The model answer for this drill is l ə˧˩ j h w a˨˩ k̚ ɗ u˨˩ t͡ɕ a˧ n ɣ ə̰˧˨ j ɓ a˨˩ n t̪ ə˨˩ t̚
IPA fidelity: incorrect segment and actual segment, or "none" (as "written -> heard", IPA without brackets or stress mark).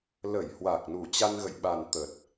ɗ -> n